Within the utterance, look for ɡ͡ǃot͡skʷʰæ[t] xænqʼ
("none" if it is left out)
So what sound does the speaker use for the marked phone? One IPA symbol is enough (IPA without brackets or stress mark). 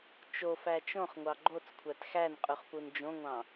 t